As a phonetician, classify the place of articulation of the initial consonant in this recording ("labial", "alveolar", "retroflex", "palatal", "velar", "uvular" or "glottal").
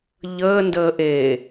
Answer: palatal